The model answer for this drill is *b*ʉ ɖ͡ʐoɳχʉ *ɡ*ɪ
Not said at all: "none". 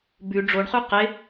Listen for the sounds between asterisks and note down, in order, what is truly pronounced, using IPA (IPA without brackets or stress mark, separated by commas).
b, q